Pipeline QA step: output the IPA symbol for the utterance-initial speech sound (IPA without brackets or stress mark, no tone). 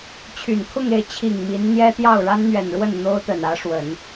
t͡ɕʰ